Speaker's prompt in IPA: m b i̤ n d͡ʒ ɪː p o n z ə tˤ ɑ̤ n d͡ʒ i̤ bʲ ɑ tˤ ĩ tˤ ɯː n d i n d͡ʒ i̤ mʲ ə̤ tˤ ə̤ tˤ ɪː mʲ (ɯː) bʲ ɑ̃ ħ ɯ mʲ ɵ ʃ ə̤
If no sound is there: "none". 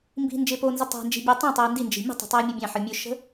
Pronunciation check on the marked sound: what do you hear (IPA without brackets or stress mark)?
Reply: ɯ